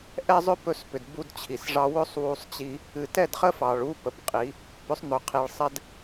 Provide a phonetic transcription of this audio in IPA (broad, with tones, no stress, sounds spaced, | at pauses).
ʔ ɛ˦ zˤ ʏ˦ p ɵ˧ s p ʏ˨ d b u˧ d t͡ɕʰ i˨ s ʐ ɑ˧ w ɵ˦ sˤ w u˧ sˤ t͡ɕ i˧ | ɨ˨ t ɛ˦˨ d χ ə˦ f ɑ˨ ɭ u˦ p ə˧ p qʼ i˨˦ | p ʏ˨˦ sˤ n̪ ɵ˨ qʰ i˨ ɭ sˤ ɛ˦ d